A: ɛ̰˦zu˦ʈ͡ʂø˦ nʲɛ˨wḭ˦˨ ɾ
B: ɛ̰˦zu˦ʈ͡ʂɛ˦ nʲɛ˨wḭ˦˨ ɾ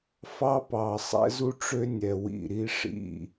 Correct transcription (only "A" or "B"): A